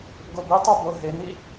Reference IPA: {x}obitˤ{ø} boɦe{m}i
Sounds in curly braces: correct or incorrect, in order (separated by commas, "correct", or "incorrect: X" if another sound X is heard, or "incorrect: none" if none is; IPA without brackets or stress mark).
incorrect: ɡ, correct, incorrect: n